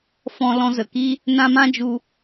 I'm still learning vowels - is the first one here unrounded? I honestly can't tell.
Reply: no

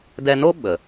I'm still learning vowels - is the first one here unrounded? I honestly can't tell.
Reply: yes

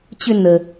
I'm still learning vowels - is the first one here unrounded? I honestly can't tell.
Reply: no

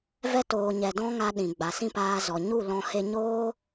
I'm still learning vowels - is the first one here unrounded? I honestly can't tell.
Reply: yes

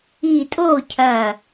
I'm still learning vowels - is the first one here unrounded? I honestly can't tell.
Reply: yes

